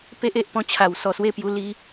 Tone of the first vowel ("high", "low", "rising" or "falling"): high